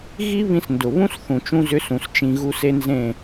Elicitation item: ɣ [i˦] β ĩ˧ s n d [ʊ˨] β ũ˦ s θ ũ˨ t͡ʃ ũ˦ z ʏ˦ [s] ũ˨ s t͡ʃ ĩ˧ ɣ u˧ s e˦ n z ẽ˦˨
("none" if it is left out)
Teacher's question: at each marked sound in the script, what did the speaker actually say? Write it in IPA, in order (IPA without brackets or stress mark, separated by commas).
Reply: i˦, ʊ˨, s